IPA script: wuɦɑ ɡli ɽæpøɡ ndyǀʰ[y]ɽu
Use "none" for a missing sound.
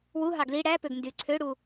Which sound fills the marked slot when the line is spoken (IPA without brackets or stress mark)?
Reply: ø